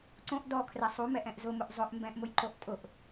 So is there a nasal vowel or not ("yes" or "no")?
yes